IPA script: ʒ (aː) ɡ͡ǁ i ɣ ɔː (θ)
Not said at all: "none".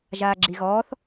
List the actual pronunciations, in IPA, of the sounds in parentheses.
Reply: aː, θ

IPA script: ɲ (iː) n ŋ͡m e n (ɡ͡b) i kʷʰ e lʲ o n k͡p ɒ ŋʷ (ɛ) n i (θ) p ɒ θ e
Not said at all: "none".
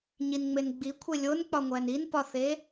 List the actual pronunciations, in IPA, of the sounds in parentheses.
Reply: i, ɡ͡b, æ, n

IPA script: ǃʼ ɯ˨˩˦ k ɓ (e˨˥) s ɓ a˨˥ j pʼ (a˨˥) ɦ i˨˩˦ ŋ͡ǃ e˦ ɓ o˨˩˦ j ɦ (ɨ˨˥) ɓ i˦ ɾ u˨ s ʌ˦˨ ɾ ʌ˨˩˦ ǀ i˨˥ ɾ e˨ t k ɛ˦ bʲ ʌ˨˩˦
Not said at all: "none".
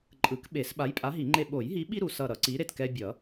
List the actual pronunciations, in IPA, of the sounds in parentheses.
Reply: e˨˩˦, a˨˥, i˨˥

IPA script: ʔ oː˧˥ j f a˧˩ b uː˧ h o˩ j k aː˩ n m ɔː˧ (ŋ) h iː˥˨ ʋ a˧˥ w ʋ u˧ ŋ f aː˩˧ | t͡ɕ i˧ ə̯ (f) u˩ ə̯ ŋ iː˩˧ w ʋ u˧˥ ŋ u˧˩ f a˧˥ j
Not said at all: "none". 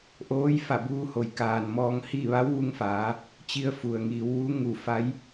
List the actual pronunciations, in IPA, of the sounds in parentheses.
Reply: ŋ, f

